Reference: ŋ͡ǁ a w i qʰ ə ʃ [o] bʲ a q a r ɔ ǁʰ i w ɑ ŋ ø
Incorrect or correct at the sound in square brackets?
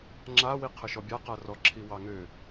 incorrect: ɔ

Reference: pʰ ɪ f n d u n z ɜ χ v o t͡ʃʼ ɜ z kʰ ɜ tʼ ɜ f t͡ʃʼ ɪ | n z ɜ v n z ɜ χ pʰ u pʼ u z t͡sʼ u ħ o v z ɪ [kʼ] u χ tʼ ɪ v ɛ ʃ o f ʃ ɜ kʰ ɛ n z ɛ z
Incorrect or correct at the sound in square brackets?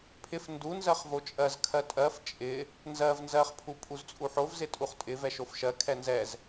incorrect: tʼ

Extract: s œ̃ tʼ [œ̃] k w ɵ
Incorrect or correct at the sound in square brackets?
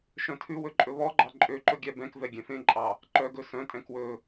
incorrect: ɛ̃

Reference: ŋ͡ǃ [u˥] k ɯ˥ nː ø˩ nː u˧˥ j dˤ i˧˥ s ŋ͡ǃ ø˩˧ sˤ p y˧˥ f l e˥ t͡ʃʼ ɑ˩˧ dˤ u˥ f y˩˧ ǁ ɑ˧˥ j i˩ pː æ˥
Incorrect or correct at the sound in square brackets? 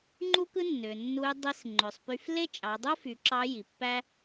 correct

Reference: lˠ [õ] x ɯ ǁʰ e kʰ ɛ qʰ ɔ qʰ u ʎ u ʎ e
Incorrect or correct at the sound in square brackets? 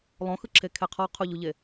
correct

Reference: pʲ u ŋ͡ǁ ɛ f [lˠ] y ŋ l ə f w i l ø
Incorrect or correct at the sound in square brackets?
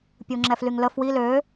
incorrect: l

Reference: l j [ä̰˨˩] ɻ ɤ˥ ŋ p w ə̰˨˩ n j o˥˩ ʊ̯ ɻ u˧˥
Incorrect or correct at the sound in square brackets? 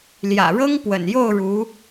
correct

